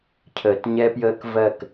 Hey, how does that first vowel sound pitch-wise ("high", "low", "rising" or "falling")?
low